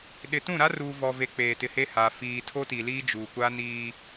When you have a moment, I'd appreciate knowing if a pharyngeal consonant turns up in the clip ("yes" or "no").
no